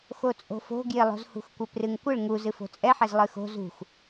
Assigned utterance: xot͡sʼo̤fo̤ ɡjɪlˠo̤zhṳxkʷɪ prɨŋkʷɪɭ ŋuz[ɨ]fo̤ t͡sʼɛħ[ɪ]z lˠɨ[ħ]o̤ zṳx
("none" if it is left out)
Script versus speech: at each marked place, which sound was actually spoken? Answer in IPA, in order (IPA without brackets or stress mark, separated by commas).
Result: ɨ, ɛ, x